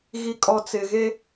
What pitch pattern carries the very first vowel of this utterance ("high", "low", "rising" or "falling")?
low